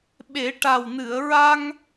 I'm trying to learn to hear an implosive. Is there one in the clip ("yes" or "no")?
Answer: yes